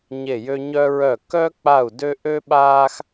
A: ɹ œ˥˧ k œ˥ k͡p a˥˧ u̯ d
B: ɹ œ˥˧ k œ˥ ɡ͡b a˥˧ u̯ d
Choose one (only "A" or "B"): A